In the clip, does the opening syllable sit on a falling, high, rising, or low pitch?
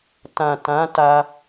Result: low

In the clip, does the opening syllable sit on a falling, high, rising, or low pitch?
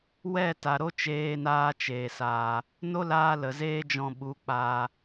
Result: falling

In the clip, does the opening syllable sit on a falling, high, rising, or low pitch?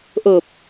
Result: low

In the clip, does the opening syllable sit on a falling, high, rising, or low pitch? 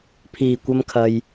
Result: low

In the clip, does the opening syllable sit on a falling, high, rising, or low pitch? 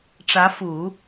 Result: rising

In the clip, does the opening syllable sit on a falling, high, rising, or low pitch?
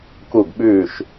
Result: falling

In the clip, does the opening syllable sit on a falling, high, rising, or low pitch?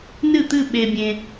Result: falling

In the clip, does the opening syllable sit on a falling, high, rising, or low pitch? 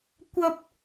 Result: high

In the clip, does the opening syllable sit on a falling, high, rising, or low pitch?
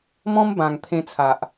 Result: high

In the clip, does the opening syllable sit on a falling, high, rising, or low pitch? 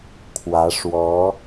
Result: rising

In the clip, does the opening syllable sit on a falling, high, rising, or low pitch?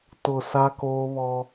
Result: low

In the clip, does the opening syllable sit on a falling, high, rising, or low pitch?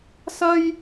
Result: high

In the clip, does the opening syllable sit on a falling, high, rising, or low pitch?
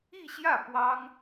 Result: falling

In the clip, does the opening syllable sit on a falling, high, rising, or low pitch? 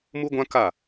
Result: high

